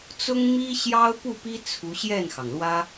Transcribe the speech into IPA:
t͡s ʊ˥ ŋ m i˥ ɕ j ɑ˥ ʊ̯ p u˥˩ p i˥ t͡sʰ u˧˥ ɕ j ɛ˥˩ n x ɑ˩ ŋ l w ä˥

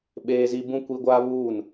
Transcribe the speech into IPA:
ɓ eː˦ z i˦ b ũ˦ kʷ i˦ ɡʷ aː˦ β uː˦˨ n

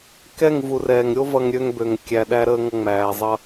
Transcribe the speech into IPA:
k ɛ˦˨ ŋ v u˨ r ɛː˨ ŋ ɾʲ o˦ v ʌ˧ ŋ ɾʲ ø˧ ŋ b ø˨ ŋ kʲ æ˨ ɗ æ˧ ɾ əː˧ ŋ ʌ˧ ŋ͡m æː˨ zˤ ʌ˦

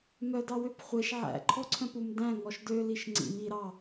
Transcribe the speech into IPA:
m œ d ɑ w ø p χʷ e ʃ ʕ æ̰ ǃʰ ɔ ǀʰ œ̃ p u m d æ̃ ŋ ɔ ʃ d ø l i ʃ ŋ͡ǀ ḭ m i ɾ ɑ

